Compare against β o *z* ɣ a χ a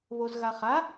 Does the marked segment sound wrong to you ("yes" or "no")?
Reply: no